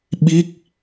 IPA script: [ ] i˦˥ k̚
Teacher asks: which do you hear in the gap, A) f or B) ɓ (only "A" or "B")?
B